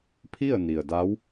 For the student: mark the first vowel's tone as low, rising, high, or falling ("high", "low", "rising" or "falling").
falling